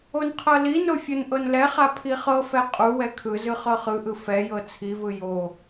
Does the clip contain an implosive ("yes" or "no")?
no